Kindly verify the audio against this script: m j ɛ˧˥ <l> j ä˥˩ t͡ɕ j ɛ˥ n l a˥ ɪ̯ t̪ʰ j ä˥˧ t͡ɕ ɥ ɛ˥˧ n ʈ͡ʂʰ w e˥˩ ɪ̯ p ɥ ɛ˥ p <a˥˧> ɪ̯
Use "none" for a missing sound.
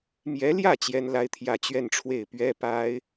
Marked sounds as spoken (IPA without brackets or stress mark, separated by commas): l, a˥